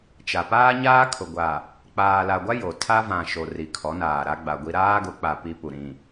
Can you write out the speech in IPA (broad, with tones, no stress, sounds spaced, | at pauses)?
t͡ʃ a˨ p aː˦ ɲ aː˦ kʰ ʊ˨ ɡʷ a˨ | k͡p aː˨ l a˨ ɡʷ a˦ j o˨ tʰ a˦ v ã˨ ʃ o˨ r i˨ kʰ ɔ˨˦ n aː˨ ɾ a˦ ɡ͡b a˨ ɡʷ i˦ ɾ aː˦ ɡ ʊ˨˦ k͡p a˨ p i˦ p u˨ ɾ ĩ˨